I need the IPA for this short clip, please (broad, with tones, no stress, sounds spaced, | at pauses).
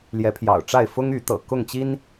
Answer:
l j ɛ˨˦ pʰ j ɑ̰˨˩ ʊ̯ ʈ͡ʂ a˥˨ ɪ̯ f ʊ˦ ŋ y˨˦ t̪ ɤ̰˨˩ k ʊ˥˨ ŋ t͡ɕ i˦ n